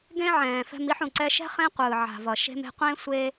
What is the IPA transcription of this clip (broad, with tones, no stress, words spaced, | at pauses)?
ɡẽ˥ʕɛ̃ː˩fɛ̤˧m i˧ħũ˩ǀɛ˧ʃɛ̤˥ χẽ˥qʷɯː˩ ʕa̤˩vʌ˩ ʃe̤˧me̤˧ qʷẽ˥ sʷe˥